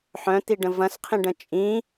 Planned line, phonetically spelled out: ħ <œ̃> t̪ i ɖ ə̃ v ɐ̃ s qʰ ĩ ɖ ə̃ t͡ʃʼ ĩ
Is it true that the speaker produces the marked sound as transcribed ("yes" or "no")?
yes